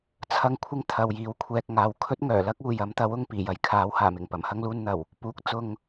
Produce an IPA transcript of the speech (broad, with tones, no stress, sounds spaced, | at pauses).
t͡sʰ ɐ˥ ŋ kʷʰ ɪ˥ ŋ t̪ʰ ɐ˨ w j iː˨˥ w kʷʰ ɛː˨ k̚ ŋ aː˨ w kʰ ɵ˥ t̚ ŋ œː˨˩ l ɐ˥ k̚ uː˨ j ɐ˨˥ m t̪ ɐ˨˥ w ʊ˨˧ ŋ p iː˨˩ j ɐ˨ j kʰ aː˨˥ w h aː˨˩ m ɪ˨˩ ŋ p ɐ˨˩ m h ɐ˥ ŋ l uː˧ n n̪ ɐ˨˩ w | p uː˨˥ k̚ t͡s ʊ˧ ŋ